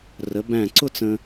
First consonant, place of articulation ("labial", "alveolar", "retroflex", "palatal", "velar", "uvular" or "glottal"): alveolar